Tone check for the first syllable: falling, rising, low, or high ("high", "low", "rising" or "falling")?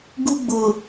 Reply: high